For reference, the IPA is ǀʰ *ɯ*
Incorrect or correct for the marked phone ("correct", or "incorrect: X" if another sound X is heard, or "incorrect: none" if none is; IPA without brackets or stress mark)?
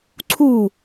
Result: incorrect: u